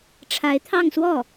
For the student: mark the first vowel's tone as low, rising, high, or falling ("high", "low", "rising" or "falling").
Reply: rising